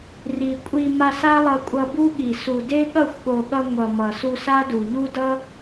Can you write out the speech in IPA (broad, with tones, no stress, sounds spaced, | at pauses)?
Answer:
r i˨ kʷʼ i˧ m a˧ s a˦ lˠ ʌ˧ kʷʼ ʌ˧ b u˦ ɠ i˨ s u˨ d e˦ ɠ ʌ˦˨ xʷ ɠ o˨ ɠ ʌ˧ ŋʷ ʌ˨ m ʌ˨ s u˧ s a˦ d u˨ ʎ u˦ d ʌ˦